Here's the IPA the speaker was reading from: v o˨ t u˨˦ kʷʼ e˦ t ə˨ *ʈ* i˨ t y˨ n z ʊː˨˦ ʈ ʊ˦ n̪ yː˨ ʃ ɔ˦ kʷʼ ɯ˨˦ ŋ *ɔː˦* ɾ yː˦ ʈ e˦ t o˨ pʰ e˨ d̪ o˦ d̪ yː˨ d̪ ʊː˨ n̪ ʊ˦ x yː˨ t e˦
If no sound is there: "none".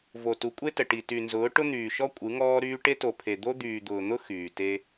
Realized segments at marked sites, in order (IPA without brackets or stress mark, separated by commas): ʈ, ɔː˦